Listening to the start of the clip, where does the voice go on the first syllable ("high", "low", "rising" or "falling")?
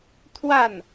falling